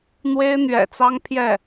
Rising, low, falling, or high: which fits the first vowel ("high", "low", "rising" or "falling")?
high